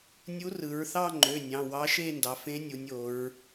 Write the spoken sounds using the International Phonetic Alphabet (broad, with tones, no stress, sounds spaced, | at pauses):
nʲ u˧˥ r ɯ˩˧ ɹ θ ɑ˥˧ ŋ͡ǃ ø˩˧˩ nʲ ɑ̃˩˧˩ w ɑ˧˥ ʃ e˥˧ n d ɑ˩˧ f ẽ˧˥ nʲ u˩˧ nʲ o˩˧ ɹ